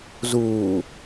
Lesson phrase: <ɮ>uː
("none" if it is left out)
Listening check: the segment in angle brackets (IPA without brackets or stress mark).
z